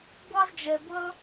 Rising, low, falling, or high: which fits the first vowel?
high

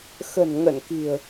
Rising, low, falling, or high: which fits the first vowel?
low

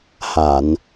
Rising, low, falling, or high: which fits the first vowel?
low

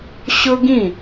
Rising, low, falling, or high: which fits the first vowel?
high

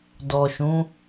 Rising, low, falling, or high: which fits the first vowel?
low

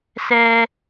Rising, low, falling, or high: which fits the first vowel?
low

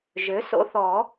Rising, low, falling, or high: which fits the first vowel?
rising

